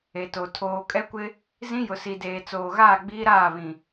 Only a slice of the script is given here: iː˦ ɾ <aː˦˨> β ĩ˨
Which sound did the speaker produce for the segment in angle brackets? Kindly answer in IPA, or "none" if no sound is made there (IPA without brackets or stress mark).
aː˦˨